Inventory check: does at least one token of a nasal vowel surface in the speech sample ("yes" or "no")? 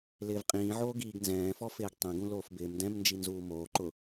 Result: yes